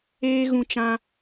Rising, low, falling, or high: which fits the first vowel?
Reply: high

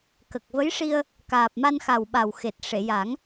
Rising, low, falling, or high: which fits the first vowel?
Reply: low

